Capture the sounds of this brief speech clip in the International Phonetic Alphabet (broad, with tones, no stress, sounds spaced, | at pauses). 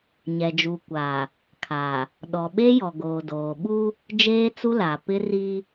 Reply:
ɲ ɛ˨ d͡ʒ u˨ kʷ aː˨ | kʰ a˨ | ɗ ɔ˨ ɓ e˦ j ɔ˨ ɡ oː˨ d oː˨ ɓ u˦ | d͡ʒ eː˦ t͡s u˦ l a˨ p ɪ˦ r i˦